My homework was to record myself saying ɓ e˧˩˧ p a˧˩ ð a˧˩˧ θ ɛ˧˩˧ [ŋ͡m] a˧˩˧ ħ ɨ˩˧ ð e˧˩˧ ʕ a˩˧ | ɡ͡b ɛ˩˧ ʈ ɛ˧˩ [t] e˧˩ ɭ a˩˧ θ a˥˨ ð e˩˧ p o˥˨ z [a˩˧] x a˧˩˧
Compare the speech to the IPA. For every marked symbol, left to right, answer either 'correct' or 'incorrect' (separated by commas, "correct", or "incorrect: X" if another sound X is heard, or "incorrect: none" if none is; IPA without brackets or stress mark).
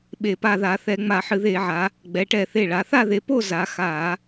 correct, incorrect: θ, correct